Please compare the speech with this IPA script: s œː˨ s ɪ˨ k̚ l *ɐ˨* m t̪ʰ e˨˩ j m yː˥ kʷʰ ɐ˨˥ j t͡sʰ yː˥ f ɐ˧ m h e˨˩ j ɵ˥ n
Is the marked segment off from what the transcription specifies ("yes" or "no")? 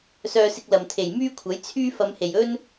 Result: no